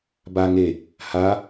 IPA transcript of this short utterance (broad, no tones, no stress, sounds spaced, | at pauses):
b a ŋ e | h a